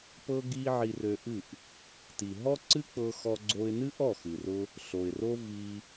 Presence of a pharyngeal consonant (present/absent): present